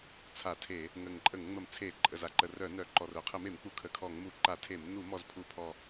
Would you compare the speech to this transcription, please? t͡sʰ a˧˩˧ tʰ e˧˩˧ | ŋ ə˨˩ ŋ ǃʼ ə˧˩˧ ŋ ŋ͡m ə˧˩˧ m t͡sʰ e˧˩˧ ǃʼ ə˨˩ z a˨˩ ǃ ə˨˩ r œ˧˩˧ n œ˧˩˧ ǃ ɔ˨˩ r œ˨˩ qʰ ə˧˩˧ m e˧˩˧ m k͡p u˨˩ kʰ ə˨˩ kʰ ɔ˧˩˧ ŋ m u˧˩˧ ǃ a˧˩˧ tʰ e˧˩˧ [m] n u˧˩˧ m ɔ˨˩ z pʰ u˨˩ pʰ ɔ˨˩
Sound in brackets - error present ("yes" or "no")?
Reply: no